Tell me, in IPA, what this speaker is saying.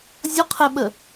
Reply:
zʲ ɔ qʰ ɛ ɓ ə

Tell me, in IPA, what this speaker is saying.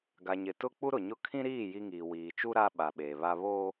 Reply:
ɡ a˨ ɲ ɪ˨ t ʊ˦ k͡p u˦ ɾ ʊ˨ ɲ ʊ˦˨ kʰ ĩ˦ ɾ iː˦˨ j i˦ ŋ iː˨ w iː˨ t͡ʃ u˦ ɾ a˦ ɓ a˨ ɓ eː˨ β a˦ β oː˦

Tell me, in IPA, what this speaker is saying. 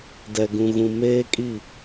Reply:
d ɛ˨ ɡ ũ˨ ɣ ũ˨ m eː˦ kʼ i˦˨

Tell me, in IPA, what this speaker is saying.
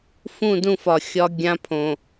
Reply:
f ũ˦˨ d ũ˦˨ f ɒ˨ xʲ ɒ˦ ɡʲ ã˦ pʰ õ˨

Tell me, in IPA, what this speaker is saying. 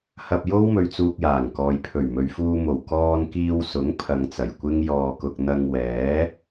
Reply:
h ɐ˧ p̚ j o˥ w m ɵ˧ ɥ t͡s uː˧ k̚ j aː˨˩ ŋ k ɔː˨ j pʰ ɵ˨˩ ɥ m ɵ˨ ɥ f uː˧ m o˨˩ w k ɔː˧ n k iː˧ w s ʊ˨˥ ŋ pʰ ɐ˨ ŋ t͡s ɐ˨˩ j kʷ ɪ˥ ŋ j ɔː˧ k ʊ˧ k̚ n̪ ɐ˧ ŋ w ɛː˨˥

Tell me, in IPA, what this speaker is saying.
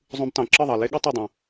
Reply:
zˤ ũ˦ b t ɑ̃˧ ǁ ɯ˦˨ ðˤ ɑ˨ l e˦ ɠ ɯ˦ tˤ o˦˨ dˤ ũ˨

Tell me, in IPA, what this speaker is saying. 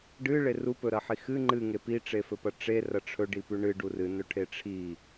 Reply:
ɖ ɨ ɭ e r u p ɵ ɾ ɐ ħ i x ɨ ŋ͡ǃ ɨ ŋ e p i ʈ͡ʂ e f ɵ p ɐ ʈ͡ʂ e r ɐ ʈ͡ʂʰ ɵ ɖ i p ʉ ɳ ɨ ɖ u r ɨ n ɵ ʈʰ e ʈ͡ʂʰ i

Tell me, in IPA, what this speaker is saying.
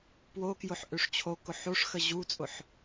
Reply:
p w o k j ʊ ħ ʔ ø ʂ t͡ɕʰ o k ʊ ħ o ʂ x ə ʑ u t͡sʼ ʊ ħ

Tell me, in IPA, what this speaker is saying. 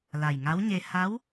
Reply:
l a˨˩ j ŋ a˧˥ w ɲ e˧ h a˧˥ w

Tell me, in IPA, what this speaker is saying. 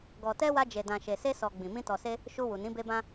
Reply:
ɡ ɔ˨ t ɛ˧ w a˧ d͡ʒ e˨ d ã˨ ʃ e˨ s e˧ s ɔ˨ ɡ͡b ĩ˨ m ĩ˧ t ɔ˨ s e˧ | ʃ u˧ w u˨ n ĩ˨˦ b e˦ b ã˦

